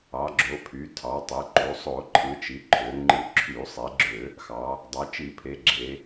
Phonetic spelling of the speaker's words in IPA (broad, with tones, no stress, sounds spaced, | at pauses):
ɑ˩˧ ɡ͡ǁ o˩˧ pʰ y˩˧ tʰ ɑ˩˧ tˤ e˩˧ ǃ u˩˧ sˤ o˧˩˧ ǃʰ ɯ˩˧ t͡ʃ i˩˧ ǃʰ ø˩˧ ŋ͡ǃ ɯ˧˩˧ ǁʰ y˧˩˧ sˤ e˩˧ ɡ͡ǁ ø˧˩˧ | x ɑ˩˧ | dˤ ɑ˩˧ t͡ʃ i˧˩˧ pʰ e˩˧ ɡ͡ǁ e˩˧